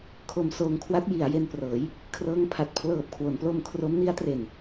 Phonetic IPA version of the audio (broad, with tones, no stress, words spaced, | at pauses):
kʰo˧msoː˧ŋkʰwa˦˥t̚ ji˩˦a̯je˧nprɤː˩˦j | kʰrɤː˦˥ŋpʰa˨˩t̚ pʰlɤː˨˩p̚kʰwo˩˦nplo˧m kʰro˦˥mni˦˥a̯tre˨˩n